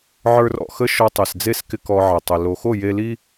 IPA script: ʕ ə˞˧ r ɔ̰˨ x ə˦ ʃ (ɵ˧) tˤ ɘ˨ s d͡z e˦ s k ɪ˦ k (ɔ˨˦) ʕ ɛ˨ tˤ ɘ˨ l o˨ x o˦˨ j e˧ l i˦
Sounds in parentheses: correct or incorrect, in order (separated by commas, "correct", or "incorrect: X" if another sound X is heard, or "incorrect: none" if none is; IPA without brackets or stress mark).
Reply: incorrect: ɔ˧, incorrect: ɔ˧